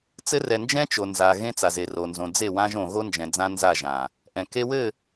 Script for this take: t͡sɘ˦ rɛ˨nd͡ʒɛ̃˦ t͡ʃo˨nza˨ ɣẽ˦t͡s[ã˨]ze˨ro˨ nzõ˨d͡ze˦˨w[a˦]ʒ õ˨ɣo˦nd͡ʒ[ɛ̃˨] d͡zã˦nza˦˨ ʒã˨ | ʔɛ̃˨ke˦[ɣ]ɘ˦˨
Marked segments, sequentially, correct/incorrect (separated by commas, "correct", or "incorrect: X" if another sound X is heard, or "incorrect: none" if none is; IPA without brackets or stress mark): incorrect: a˨, incorrect: ã˦, correct, incorrect: w